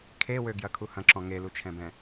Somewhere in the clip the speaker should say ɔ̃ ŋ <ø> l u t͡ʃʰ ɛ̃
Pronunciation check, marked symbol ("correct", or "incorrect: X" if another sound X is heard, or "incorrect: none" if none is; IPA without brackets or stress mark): incorrect: e